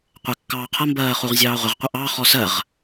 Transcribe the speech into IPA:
qʷ ɛ kː ɑː qʰ ʌ m b ɜː χ u ʁ zʲ ɑː ʁʷ ɪ ʁ qʷ ʌ ʔ ɑ χ ɔ s ɜ ʁ

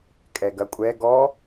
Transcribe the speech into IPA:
kʼ ɛ ɡ ɐ kʷʼ ɛ ɡ ɔ

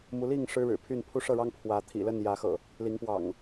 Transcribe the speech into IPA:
m u˨˦ l i˥˨ ŋ ʂ ɻ̩˦ ɻ ɻ̩˨˩ pʰ y˥˨ n pʰ u˦ ʂ ɤ˥˨ ɻ ɑ˦ ŋ pʰ w ä˨˦ t̪ʰ ḭ˨˩ l ə˥˨ n j ä˨˦ x ɤ̰˨˩ | l i˨˦ ŋ p w ɑ̰˨˩ ŋ

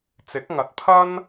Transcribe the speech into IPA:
t͡s ɪ˨˥ k̚ ŋ ɐ˨˥ t̚ pʰ ɐ˥ n

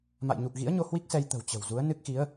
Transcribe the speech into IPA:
m a̰˧˨ j ɲ u˨˩ k̚ ɣ ḭ˧˥ ə̯ ɲ o˧ h w i˦˥ k̚ s ɛ˧ j t̪ ə̤˨˩ w t͡ɕ ə̤˨˩ w z u˨˦ ə̯ n ɨ˦˥ k̚ x i˨˦ ə̯

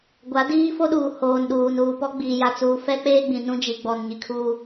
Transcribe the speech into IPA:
ɡʷ a˨˦ d iː˦ f o˦ ɗ uː˨ h oː˨ n ɗ uː˨ n uː˨ p ɔ˦ ɡ͡b iː˨ j a˨ t͡s uː˨ f ɛ˦ k͡p eː˦ ɡ͡b ĩ˨ n ũ˦ d͡ʒ i˨ ɡ͡b ɔ˨ n ɲ i˨ kʰ uː˦

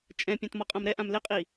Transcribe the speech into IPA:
t͡ʃʼ ɛ̃ pʲ ã t m ɔ qʼ ã m ɾ ɛ ʔ ã m l ɪ qʼ i

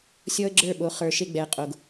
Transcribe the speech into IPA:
sʲ ɔ˦ ə̯ ɡ͡ǁ ə˞˦˨ ɓ o˨˦ χ ə˞˨ ʃ e˦ ɡ͡b ɛ˨ ə̯ qʼ o˨ ɡ

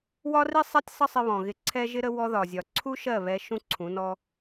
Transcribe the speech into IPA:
w ɒ˦ r i˦ sˤ ɛ˦ tʲ sˤ ə˦ sˤ ɪ˧ β ɔ̃˨ ɣ ɪ˧ ǀʰ ɛ˦ ʒ ɪ˦ ɾ ə˦ w ɔ˧ ð ɒ˨ zʲ ɒ˨ ǀʰ u˦ ʃ ɜ˦˨ β ɛ˧ ʃ ũ˦ ǀʰ ũ˨˦ n ɔ˦

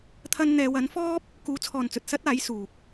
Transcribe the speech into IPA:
t̪ʰ ɐ˧ n n̪ ɛː˨˧ w ɐ˨˥ n f ɔː˥ p̚ | k uː˨˥ t͡sʰ ɔː˨ n t͡s ɵ˨ t̚ s ɐ˥ t̚ aː˨˥ j s uː˨ k̚

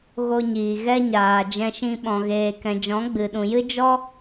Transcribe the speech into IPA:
ɣ o˧ ɲ iː˨ ɣ ɛ˧ ɲ aː˨ d͡ʒ ɛ̃˧ ʃ ĩ˧ ɓ ɔ̃˨ ɣ eː˨ k ɛ̃˨ d͡ʒ ɔ̃˨˦ ɡ͡b ɨ˨ ɗ ũ˨ j ɨ˦ d͡ʒ ɔ˦

